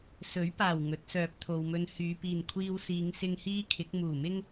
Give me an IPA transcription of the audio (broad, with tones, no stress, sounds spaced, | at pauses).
s ɵ˨˥ ɥ p aː˨˩ w ŋ ɵ˨˥ t̚ s œː˨ p̚ t̪ʰ o˨ w m ɵ˧ n h yː˨˧ p iː˨ n kʷʰ iː˧ w s iː˨˧ ŋ s ɪ˧ ŋ h iː˥ kʰ ɪ˨˥ k̚ m uː˨˩ m ɪ˥ ŋ